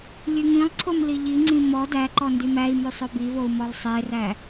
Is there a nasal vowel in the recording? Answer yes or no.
yes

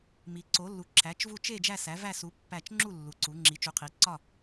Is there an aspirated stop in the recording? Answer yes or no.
yes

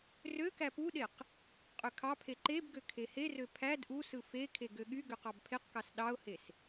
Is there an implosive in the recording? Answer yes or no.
yes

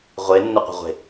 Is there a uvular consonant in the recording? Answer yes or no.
yes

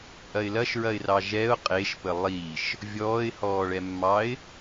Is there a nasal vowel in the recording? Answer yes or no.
no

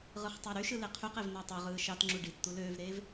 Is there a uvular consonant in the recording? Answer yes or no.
yes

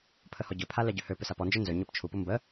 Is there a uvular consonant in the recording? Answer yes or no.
no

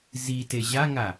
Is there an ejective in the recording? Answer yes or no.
no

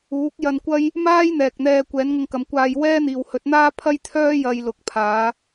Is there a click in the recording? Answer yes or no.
no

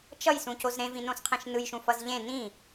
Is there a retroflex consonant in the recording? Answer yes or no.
no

